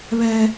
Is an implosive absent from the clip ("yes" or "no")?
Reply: yes